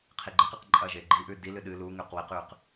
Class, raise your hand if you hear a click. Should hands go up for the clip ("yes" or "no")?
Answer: yes